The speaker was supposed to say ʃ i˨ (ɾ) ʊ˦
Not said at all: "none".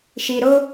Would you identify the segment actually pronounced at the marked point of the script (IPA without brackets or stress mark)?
ɾ